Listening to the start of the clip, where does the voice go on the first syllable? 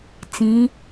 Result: rising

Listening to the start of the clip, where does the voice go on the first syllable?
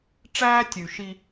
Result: high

